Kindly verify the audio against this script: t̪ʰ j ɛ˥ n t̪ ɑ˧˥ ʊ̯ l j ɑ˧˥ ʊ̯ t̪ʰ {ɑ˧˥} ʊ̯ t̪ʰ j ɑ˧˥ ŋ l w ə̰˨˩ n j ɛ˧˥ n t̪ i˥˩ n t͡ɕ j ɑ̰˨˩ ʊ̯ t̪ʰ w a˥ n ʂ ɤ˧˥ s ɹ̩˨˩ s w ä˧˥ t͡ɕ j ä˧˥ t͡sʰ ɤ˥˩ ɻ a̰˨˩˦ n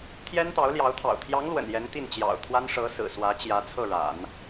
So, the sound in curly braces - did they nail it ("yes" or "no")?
no